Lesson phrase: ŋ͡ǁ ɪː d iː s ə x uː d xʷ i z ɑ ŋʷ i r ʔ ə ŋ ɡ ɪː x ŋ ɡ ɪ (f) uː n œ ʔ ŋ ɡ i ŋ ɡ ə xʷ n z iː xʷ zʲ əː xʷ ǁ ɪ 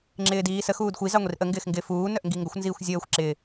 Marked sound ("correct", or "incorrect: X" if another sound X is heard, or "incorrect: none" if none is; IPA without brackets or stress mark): correct